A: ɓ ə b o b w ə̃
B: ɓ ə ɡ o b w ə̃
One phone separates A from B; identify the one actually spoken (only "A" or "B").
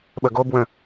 B